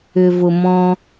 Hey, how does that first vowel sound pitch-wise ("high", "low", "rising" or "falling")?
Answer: low